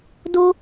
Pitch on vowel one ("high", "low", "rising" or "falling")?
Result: high